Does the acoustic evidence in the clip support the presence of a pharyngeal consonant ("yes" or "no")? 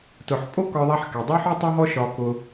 yes